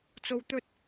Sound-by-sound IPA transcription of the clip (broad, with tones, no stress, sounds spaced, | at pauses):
t͡s o˨ w t̪ ɵ˧ t̚